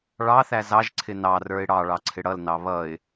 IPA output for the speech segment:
ɭ ɑ θ æ z ɑ ʒ ǀʰ ɪ n ɑ r ə˞ ɪ̯ ɽ ɑ ɭ ɑ ǀʰ ɪ ɽ ʌ l n ɑ β ʌ ɪ̯

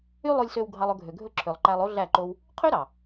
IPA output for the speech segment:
y˦ lˠ o˧ lʲ s ø˧ w ɡʱ ɑ˧ lˠ ɵ˧ ɡʱ ø˨ ɡʱ ɵ˦˨ ǁʰ ø˨ lˠ ǃ æ˧ lˠ o˦ ɮ æ˦˨ ǃ o˦ w | qʰ ø˦ ɾ ɑ˨

